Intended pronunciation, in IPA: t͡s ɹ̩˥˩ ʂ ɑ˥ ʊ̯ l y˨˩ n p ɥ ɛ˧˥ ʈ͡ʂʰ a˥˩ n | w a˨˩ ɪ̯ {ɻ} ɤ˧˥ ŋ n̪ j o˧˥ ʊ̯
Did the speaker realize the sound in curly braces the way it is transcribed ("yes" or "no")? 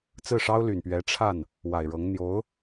yes